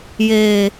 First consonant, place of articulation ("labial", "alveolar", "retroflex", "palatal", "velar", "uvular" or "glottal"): palatal